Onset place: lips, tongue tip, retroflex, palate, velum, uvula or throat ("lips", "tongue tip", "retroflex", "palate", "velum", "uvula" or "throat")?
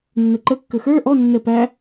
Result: tongue tip